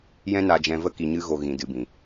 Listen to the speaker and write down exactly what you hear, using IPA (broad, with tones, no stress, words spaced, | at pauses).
jɛ̃˦na˧d͡ʒɛ̃˧və˦ ki˧ɲɨ˦ɣo˧ ɣĩ˧dɨ˧bĩ˨